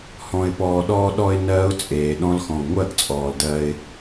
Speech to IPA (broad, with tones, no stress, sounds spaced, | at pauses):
h ɔ̃˨ ɪ̯ p ɔː˨ ɗ ɔː˧ ɗ ɔ˧ ɪ̯ n ɜː˦ ʊ̯ t͡sʼ eː˨ ɗ ɔ̃˦ l x ɔ̃˨ ɡ ŋʷ ɜ˦˨ ɡ t͡sʼ ɔː˨ l d ɜ˧ ɪ̯